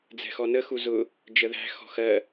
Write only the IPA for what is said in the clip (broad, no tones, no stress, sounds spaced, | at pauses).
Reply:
d͡z ɛ̤ x ɔ n ə x u z ʊ | d͡ʒ ə ð æ̤ x ɔ̤ x ɜ